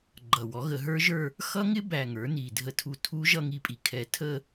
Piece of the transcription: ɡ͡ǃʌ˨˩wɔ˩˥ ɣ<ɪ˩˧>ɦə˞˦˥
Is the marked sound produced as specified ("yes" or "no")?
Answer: no